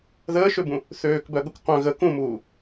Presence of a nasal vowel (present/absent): present